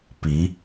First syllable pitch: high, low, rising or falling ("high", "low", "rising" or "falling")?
rising